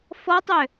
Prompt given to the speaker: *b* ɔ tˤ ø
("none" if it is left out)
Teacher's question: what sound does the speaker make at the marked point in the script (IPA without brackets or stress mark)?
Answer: f